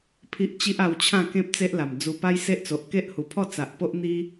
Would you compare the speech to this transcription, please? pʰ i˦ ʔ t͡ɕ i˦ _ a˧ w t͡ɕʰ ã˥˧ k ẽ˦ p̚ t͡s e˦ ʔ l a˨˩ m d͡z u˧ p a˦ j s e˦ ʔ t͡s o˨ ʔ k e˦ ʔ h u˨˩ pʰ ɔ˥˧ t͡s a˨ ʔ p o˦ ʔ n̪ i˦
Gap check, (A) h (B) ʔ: B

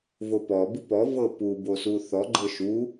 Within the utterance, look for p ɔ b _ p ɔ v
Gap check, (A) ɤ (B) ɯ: B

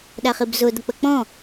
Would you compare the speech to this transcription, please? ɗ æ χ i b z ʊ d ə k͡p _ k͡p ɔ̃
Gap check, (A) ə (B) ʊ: A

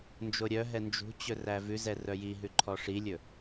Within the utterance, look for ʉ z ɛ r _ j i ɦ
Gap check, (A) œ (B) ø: A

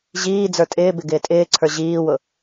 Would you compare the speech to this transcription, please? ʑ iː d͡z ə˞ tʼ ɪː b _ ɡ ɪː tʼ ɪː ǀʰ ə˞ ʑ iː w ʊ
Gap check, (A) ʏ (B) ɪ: B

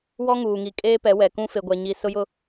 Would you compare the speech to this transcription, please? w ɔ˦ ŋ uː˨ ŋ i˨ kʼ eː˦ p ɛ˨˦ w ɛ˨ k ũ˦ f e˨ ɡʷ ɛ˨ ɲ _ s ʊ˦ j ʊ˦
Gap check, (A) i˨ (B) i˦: A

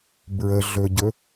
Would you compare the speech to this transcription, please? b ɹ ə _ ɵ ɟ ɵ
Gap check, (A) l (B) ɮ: B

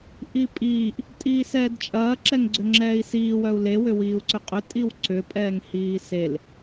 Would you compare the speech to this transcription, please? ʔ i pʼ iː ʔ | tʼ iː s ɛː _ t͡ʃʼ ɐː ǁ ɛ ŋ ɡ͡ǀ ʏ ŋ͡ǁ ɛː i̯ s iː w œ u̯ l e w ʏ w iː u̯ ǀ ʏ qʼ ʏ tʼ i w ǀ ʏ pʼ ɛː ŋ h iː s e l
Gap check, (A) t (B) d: B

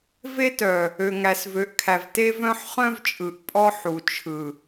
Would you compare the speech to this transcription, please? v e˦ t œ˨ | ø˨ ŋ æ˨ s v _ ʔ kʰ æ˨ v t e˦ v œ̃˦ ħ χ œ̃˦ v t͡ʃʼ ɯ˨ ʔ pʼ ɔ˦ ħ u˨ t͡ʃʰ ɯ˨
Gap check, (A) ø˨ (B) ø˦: A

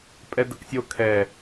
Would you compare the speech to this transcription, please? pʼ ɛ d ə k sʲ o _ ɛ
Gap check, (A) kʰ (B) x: A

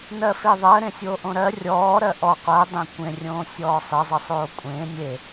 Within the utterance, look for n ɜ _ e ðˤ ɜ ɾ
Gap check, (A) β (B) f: B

